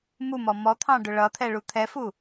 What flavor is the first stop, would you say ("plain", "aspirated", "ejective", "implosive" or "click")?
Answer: aspirated